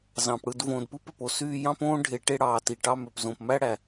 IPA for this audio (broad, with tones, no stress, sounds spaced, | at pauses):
z ɑ̃˩ p ɽ ɯ˨ d v õː˨ d p ɯ˥ p ø˩ p o˦ s yː˦ j ɑ̃˥ p õː˥ ɖʱ e˨ ʈ e˥ ɽ ɑː˨ t i˩ ʈ ɑ˥ m ø˨ p z õ˨ p m æ˥ ɽ æ˩